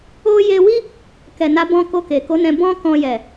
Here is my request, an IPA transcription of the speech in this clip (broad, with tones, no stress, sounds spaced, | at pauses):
o˦ j e˧ w i˦ | k ɛ˨ n a˨˦ b ɔ̃˧ k o˧ k e˨ k o˨˦ n ɛ̃˧ b ɔ̃˦ k ɔ̃˧ j ɛ˨